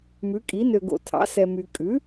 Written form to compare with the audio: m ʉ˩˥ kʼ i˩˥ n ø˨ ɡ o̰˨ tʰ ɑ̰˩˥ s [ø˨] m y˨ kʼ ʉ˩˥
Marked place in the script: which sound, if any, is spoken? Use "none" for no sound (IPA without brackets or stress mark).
ɛ˨